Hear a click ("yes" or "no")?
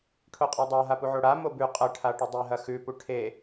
no